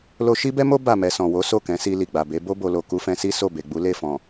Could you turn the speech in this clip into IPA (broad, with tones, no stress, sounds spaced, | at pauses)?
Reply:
l o˧ ʃ i˦ b ɛ˦ m o˦ b a˦˨ m ɛ˧ s ɔ̃˨ w o˨˦ s o˦˨ k ɛ̃˨˦ s i˧ l i˨ ɡ͡b a˨ b e˨˦ b o˧ b o˨ l o˨ k u˧ f ɛ̃˧ s i˦ s o˦˨ b e˨ ɡ͡b u˨˦ l e˦˨ f ɔ̃˨